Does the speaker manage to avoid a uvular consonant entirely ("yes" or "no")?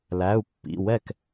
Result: yes